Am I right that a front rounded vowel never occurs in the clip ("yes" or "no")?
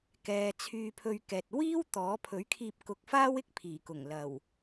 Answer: no